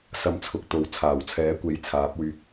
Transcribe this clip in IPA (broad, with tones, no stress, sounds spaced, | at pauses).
s ɐ˧ m t͡sʰ ʊ˨˥ k̚ t̪ o˨ w t͡sʰ aː˨˩ w t͡sʰ ɛː˨˥ kʷ e˨˥ j t͡sʰ aː˨˥ p̚ w yː˧ k̚